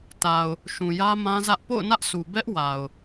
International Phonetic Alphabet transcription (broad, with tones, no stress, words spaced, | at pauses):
ta˨ʊ̯ | ʃũ˨jä˦mã˦zä˦ʔ po̰˦˨ʊ̯nä˦ʔsʰu˨ bɛ˦ʔ wa˨ʊ̯